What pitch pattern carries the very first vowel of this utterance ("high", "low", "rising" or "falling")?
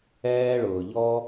high